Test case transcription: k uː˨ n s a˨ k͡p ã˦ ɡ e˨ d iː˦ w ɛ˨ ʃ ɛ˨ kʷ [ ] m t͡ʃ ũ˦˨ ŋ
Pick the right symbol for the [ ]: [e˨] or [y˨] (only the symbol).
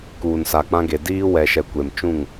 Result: e˨